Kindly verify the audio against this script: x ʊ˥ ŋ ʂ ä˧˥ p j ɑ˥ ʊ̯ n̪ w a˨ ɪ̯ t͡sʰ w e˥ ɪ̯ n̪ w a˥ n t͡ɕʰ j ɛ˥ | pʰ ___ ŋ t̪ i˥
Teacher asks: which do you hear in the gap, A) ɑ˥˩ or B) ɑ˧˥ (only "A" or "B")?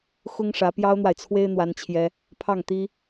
A